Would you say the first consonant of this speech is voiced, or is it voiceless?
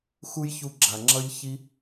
voiceless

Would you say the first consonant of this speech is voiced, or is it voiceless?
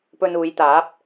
voiceless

